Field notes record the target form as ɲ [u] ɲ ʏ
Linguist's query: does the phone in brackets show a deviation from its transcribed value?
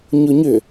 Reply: yes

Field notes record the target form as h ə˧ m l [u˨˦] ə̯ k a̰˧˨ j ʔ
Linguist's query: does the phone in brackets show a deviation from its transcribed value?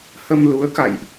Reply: no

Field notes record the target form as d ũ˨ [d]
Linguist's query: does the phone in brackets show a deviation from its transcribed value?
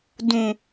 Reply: yes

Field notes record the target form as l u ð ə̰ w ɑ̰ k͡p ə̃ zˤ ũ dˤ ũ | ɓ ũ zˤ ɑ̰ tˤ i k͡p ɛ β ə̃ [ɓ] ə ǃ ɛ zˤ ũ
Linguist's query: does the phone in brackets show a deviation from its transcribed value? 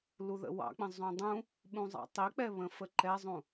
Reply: yes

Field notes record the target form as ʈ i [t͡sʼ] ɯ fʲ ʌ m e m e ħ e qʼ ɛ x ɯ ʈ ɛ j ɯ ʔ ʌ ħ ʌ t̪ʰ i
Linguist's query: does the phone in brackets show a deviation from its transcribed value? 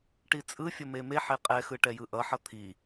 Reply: no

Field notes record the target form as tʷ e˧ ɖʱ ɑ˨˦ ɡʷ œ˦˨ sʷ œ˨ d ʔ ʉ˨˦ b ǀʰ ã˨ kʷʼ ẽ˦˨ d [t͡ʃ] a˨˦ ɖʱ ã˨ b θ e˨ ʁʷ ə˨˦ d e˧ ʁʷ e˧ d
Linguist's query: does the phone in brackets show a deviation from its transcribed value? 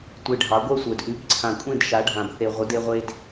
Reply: yes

